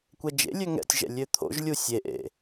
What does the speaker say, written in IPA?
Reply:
kʷ ɛ d͡ʒ ḛ lʲ ø ŋ ɛ̰ tʲ ʒ ɛ̰ lʲ ø t̪ʰ o̰ ʒ lʲ u sʲ e ʔ ḛ

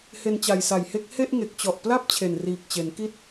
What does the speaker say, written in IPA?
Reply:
h e˧ n t͡ɕ a˨˩ j s a˨˩ j h e˦˥ k̚ h e˥˩ ʔ ŋ e˨˩ k̚ t͡ɕ ɔ˨˩ ʔ p l a˥˩ p̚ t͡ɕʰ e˨˩ n r iː˨˩ k̚ t͡ɕ e˩˦ n k i˥˩ t̚

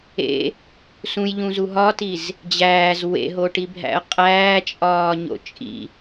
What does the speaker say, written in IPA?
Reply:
ḛ | s ũ j ʎ ũ z u ɦ ɒ t i z | d͡ʑ æː z w ḛ ɦ o ʈ i bʱ æ̰ ə̯ qʼ æː t͡ʃʼ ɒː ɲ o̰ t͡ʃʼ ḭ

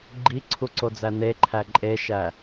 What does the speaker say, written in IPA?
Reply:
ɡ͡ǃ i ǀʰ u ǀ o d͡z æ n e ǃʰ æ ǃʼ e ʃ æ

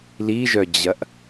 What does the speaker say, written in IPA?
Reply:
l i ʒ œ d͡ʑ ɐ ʔ

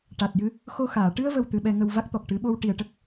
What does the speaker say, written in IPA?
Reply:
ʈ a˨˩ t̚ j ɨ˧ | x o˧ x aː˨˩˨ ʈ ɨ˧ ə̯ v ə˨˩ w t̪ ɨ˧ ɓ ɛ˧ ŋ ə˧ w v a˦˥ k̚ t̪ ɔ˨˩ k̚ ʈ ɨ˨˩˦ ɓ o˧ w ʈ i˨˩ ə̯ ʈ ə˦˥ k̚

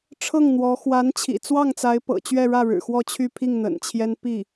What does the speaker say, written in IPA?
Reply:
ʈ͡ʂʰ ɤ˥˩ ŋ n̪ w ɔ˧˥ x w a˧˥ n t͡ɕʰ ḭ˨˩ t͡s w ɑ˥˩ ŋ t͡s a˧˥ ɪ̯ p ɤ̰˨˩ t͡ɕ ɥ ɛ˥˧ ɻ ä˥˩ ɻ ɻ̩˨˩ x w ɔ˥˧ t͡ɕʰ y˥˧ pʰ i˥˩ ŋ n̪ ə̰˨˩ n t͡ɕʰ j ɛ˥ n p i˥˩

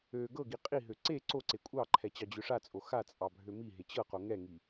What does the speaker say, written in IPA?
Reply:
ø ɡ ɤ ɡ i qʼ i ɦ ø ǀ e ǀ o ǀ e kʷʼ ɑ ǃʰ ɛ t͡ɕ ɑ d͡ʑ ø ʂ a t͡sʼ o x a t͡sʼ ɑ bʱ ø m i ɦ e t͡ɕ ɤ q o ŋ ɛ ŋ i

